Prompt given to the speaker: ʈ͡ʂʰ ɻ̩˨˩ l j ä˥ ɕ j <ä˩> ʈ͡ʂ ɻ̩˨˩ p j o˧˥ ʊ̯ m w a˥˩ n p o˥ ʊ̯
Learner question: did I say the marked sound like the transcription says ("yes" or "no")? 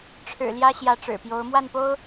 no